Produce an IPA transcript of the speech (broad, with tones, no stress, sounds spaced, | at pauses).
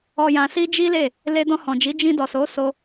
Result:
ɔ˨ j ã˨ s i˧ d͡ʒ i˦ l e˦˨ | l e˧ d ɔ̃˧ h ɔ̃˨ d͡ʒ i˨˦ d͡ʒ ĩ˧ d ɔ˨ s o˨˦ s o˧